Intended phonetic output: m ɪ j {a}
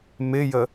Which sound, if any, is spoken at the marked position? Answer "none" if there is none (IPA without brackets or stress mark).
ə